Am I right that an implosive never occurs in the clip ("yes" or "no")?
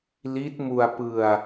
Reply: yes